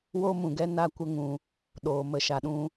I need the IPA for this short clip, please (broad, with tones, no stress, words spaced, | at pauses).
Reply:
wo˦mũ˨ɡɛ˦ na˧kʷə˧ŋũ˨ | ɗoː˨ mə˨ʃa˨ɗũ˧